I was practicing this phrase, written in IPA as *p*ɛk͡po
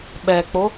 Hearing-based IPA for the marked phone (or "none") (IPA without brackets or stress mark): ɓ